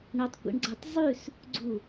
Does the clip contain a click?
yes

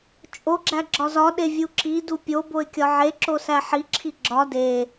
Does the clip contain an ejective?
yes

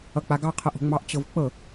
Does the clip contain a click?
no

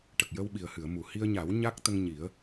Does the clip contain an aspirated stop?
no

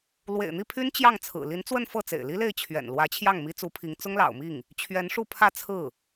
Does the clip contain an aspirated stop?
yes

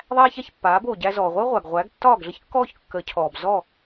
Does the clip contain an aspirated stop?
yes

